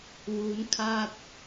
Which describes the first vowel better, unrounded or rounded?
rounded